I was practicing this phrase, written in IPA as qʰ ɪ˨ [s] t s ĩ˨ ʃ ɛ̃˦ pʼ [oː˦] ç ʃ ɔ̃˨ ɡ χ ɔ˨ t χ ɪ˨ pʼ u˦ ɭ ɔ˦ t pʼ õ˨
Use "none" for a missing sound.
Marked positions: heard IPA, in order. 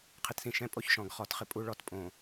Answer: none, o˦

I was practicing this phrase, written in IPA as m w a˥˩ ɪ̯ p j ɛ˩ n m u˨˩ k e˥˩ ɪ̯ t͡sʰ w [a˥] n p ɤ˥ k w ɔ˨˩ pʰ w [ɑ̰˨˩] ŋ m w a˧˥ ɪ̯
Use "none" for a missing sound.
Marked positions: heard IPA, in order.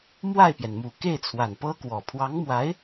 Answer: a˨˩, ɑ˧˥

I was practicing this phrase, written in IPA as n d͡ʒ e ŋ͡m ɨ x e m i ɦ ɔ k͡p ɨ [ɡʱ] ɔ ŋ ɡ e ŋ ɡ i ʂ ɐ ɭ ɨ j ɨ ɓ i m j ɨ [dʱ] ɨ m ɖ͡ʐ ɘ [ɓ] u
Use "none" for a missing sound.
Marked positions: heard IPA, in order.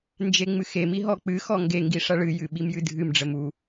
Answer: x, dʱ, m

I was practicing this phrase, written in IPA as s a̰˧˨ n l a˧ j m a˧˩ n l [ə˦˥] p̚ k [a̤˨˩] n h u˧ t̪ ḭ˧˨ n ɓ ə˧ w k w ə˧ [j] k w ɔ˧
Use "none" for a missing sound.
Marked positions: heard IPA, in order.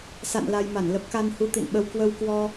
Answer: ə˦˥, a˧, w

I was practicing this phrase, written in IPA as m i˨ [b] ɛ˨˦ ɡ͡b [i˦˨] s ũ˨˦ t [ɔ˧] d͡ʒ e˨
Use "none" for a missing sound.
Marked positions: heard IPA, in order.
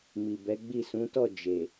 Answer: b, i˦˨, ɔ˦˨

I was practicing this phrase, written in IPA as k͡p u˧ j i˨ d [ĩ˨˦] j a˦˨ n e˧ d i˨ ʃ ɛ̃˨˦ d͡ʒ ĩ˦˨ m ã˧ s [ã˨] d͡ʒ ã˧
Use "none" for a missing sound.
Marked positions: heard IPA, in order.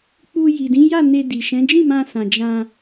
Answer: ĩ˨˦, ã˨

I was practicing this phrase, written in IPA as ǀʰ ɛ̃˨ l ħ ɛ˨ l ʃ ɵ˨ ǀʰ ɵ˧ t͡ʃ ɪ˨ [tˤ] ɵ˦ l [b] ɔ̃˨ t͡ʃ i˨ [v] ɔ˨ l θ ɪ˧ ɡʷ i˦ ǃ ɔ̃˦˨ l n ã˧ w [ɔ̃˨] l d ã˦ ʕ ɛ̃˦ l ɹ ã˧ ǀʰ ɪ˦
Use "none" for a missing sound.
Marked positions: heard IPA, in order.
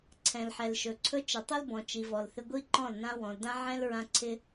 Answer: tˤ, b, v, ɔ̃˨

